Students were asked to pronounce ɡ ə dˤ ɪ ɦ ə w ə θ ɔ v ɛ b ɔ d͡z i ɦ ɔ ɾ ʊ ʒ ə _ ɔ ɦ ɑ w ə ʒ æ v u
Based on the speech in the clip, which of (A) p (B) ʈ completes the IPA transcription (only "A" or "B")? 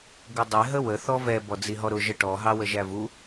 B